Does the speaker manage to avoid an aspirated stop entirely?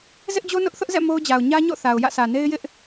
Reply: yes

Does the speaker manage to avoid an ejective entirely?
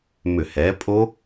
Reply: no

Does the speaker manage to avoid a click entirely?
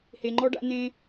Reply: no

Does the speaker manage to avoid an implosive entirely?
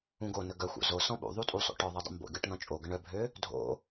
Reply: no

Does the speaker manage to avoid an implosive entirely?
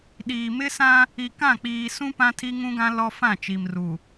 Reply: no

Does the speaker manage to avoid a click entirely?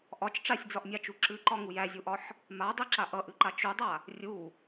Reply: no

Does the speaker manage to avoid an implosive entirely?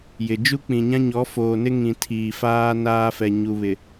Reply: yes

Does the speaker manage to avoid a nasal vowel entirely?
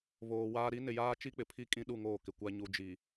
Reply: no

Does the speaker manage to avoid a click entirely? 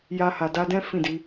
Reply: yes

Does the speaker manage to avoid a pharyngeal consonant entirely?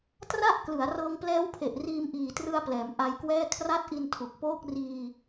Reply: yes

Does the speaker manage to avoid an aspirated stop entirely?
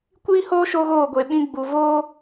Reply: yes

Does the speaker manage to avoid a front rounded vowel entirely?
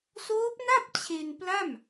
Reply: yes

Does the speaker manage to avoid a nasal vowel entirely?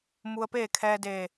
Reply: yes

